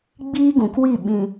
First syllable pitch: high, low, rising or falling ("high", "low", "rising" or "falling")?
high